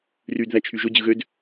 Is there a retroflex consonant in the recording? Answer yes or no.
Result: no